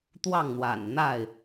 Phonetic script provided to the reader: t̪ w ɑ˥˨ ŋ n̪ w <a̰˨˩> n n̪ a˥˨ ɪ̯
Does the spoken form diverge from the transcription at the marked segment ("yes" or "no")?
no